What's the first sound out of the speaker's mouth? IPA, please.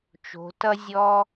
t͡ʃ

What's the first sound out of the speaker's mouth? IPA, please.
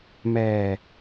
m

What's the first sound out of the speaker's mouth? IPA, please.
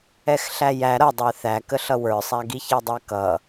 ɛ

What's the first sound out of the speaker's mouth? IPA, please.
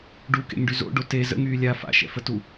ɖ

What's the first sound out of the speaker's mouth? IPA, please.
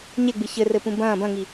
ɲ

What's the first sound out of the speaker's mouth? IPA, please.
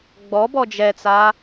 ɡ͡b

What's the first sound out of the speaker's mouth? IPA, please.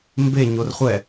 m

